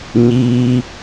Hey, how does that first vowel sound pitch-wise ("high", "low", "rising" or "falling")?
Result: high